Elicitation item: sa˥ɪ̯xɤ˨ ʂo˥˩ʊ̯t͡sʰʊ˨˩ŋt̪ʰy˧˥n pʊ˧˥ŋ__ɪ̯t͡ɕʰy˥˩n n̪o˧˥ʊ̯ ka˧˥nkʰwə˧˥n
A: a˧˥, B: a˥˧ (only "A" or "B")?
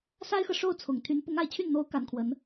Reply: B